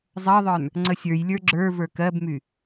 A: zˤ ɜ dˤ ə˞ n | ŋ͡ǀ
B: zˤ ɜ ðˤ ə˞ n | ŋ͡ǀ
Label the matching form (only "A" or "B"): B